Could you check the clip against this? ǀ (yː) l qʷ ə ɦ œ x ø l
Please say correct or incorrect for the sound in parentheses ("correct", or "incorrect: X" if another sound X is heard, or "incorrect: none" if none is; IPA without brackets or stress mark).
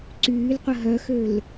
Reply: correct